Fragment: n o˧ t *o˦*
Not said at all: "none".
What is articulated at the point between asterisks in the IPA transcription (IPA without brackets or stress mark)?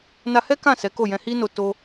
o˦